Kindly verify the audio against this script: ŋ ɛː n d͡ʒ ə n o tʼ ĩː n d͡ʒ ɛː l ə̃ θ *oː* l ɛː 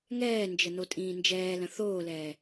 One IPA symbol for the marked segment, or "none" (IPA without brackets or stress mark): oː